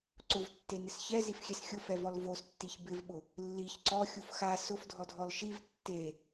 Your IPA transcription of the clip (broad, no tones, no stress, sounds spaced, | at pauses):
ǀ ʊ v tː e n ɪ s ç ɛ z i f xʲ ɛ s xʲ ʊ f ɛ v ɔ l v o s tː i ç b ɪ v ɓ ʊ | lː i ç ǀ ɔ xʲ u f x a s ʊ f dʱ ɔ dʱ ɔ l ʃ i v tː e